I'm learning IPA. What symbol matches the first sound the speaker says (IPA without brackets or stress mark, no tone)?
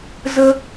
z